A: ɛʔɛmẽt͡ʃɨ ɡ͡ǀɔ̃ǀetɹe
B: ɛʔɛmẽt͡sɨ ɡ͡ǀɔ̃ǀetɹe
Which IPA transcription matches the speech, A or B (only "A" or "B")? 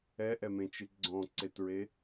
A